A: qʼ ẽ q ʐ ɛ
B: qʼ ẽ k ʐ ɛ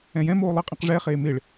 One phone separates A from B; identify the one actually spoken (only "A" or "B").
A